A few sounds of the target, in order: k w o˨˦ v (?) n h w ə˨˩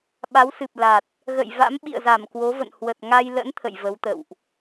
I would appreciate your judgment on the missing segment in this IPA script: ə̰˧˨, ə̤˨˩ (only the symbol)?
ə̰˧˨